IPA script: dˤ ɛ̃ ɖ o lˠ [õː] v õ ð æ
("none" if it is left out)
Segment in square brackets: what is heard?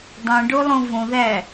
õ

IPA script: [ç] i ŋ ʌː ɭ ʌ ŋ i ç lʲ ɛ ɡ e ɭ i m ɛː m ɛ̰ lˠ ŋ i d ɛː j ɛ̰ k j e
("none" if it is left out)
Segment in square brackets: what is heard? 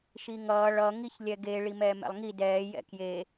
ʃ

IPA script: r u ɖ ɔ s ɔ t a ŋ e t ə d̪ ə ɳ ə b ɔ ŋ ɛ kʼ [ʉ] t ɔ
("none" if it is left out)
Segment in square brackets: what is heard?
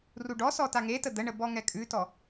ʉ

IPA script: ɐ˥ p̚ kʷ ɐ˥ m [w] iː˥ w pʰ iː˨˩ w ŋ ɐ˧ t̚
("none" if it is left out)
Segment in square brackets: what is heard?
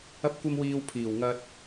w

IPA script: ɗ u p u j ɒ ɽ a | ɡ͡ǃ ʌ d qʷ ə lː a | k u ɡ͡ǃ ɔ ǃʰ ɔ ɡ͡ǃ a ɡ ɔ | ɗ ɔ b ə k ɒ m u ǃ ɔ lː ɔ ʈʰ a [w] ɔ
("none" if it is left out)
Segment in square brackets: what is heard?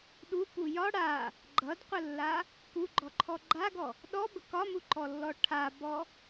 b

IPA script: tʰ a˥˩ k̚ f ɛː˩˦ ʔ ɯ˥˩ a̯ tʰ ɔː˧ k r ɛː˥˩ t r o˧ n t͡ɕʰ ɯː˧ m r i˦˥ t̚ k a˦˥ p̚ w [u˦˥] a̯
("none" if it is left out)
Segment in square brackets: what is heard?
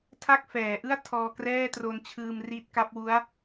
u˦˥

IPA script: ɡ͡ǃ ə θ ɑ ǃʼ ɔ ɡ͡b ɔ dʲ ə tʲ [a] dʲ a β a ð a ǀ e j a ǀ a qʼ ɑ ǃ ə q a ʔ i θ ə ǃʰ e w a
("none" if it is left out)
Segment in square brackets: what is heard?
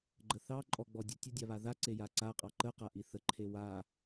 ə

